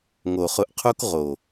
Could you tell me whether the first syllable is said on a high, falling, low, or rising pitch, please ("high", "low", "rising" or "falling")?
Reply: low